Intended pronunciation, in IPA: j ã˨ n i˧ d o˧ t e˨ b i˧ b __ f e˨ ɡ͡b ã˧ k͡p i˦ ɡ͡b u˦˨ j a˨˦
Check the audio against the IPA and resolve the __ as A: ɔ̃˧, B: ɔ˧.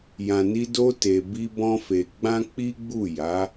A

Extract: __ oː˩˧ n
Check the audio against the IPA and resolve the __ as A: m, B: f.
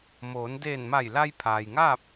A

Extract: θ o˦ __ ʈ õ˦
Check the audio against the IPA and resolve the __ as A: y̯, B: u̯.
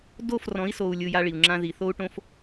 B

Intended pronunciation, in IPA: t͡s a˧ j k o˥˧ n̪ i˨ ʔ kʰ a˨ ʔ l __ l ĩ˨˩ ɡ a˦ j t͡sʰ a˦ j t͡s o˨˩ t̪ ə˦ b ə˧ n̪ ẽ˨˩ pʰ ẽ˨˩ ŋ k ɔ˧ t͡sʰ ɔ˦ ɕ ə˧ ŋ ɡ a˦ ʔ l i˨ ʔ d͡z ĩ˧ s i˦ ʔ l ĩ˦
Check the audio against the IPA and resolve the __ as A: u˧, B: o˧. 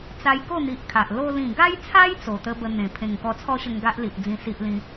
B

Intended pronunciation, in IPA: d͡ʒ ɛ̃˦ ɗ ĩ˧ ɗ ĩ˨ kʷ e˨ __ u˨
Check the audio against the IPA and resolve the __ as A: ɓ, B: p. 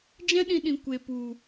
B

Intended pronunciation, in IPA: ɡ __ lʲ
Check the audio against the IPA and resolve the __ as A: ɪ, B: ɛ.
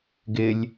A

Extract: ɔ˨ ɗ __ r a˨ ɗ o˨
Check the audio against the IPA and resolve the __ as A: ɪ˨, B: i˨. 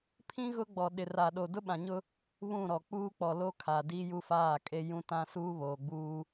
A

